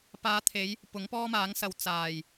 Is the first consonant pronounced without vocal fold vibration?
yes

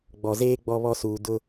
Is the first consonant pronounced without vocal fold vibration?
no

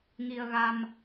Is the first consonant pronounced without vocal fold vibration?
no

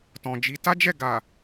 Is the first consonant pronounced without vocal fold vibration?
yes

